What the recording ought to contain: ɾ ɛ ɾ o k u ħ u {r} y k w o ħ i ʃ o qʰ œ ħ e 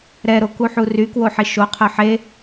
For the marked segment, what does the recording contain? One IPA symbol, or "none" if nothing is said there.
r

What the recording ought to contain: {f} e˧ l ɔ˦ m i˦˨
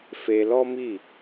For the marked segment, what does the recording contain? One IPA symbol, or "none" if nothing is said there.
f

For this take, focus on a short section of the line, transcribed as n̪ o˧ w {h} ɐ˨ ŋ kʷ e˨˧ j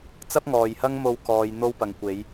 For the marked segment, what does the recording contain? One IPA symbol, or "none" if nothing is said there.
p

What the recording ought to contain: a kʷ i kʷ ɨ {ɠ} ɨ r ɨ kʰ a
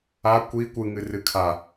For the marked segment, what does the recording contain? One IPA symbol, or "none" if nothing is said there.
ŋ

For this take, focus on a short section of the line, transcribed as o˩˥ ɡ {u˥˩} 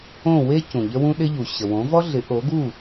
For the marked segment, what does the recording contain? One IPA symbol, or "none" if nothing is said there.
u˥˩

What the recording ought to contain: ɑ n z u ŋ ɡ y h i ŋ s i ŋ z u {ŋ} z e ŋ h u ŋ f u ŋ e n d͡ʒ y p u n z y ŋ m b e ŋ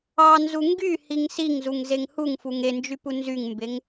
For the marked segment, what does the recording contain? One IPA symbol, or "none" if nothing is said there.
ŋ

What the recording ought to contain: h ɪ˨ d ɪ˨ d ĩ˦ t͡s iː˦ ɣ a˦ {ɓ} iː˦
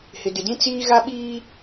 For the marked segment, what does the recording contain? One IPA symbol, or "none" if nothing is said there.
ɓ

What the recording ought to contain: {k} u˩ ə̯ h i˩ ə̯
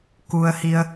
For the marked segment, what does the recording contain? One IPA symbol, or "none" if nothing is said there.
k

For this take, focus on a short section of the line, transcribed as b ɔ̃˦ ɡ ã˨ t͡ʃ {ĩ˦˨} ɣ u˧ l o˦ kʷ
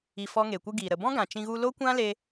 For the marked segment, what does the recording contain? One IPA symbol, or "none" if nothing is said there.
ĩ˧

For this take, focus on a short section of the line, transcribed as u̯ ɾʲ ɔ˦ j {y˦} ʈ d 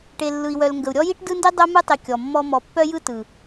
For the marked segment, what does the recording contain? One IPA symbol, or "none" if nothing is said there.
i˦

